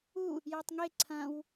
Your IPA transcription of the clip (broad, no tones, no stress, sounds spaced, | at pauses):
u | j a tˤ ŋ e ǀʰ ɐ̃ w